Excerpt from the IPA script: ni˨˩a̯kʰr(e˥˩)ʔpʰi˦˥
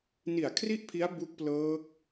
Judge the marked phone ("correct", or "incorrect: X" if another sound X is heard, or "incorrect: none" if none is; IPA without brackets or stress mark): incorrect: i˥˩